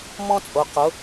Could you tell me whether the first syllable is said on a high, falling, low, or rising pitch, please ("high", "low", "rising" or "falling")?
high